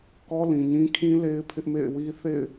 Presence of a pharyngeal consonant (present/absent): absent